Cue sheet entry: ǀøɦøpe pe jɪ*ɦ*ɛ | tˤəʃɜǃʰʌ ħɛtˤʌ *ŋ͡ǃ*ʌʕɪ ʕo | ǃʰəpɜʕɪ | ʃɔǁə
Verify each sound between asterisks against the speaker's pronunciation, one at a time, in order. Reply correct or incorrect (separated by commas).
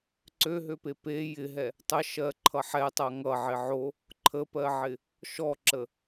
correct, incorrect